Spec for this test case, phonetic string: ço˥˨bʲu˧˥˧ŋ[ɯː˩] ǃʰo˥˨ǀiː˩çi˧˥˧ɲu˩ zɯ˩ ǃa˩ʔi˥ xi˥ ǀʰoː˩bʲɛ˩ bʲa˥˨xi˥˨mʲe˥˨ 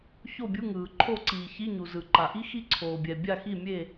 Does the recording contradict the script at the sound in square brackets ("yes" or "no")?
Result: no